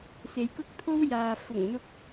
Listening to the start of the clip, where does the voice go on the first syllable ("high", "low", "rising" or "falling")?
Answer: low